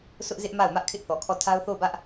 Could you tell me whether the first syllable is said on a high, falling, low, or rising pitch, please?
high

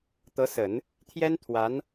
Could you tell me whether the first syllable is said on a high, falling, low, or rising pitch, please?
rising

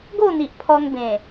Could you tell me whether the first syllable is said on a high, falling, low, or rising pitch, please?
falling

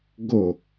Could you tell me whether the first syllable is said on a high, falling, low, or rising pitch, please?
falling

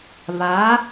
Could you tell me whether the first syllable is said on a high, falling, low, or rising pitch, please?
rising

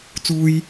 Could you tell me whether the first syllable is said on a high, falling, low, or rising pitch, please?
high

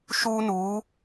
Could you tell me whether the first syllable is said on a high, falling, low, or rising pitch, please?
high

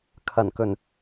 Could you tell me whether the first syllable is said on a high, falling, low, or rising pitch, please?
low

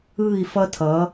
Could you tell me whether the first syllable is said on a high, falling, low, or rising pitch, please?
falling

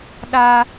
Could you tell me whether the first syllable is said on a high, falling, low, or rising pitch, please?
high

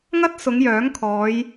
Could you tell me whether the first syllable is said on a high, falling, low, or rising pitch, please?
high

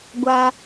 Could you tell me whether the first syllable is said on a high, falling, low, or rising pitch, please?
high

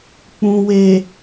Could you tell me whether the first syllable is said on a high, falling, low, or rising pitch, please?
low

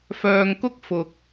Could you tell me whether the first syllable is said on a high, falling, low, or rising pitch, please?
low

